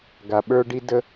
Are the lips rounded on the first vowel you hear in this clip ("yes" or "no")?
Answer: no